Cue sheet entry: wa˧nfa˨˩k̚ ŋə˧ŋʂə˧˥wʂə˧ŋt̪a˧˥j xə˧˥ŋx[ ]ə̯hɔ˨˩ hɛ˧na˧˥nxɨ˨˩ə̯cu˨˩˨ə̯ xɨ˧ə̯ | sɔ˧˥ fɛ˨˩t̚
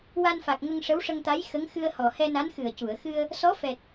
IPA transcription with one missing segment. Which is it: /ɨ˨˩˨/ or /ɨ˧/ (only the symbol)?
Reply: ɨ˧